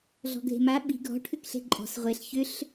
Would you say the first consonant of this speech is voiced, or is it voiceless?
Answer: voiced